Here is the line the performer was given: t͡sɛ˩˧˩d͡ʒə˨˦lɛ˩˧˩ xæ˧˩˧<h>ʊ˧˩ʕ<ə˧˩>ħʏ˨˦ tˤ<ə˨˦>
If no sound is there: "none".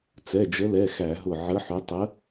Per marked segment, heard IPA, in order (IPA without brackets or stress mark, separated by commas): ɦ, ə˨˦, ə˨˦